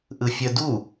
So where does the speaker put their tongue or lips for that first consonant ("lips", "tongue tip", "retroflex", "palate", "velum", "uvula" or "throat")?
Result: throat